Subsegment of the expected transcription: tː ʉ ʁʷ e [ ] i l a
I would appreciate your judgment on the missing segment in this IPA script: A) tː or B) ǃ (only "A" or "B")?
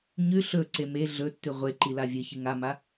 B